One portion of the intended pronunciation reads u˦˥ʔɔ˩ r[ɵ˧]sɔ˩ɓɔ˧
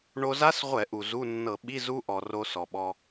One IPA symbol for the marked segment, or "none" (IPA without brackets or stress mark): o˧